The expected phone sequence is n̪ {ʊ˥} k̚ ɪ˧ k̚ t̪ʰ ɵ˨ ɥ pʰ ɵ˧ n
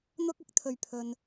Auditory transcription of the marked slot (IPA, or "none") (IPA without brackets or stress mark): ʊ˧